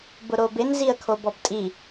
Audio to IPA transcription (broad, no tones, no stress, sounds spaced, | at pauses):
b ʊ ɾ o b ɪ n z i ə̯ kʰ o b ɔ b tʼ i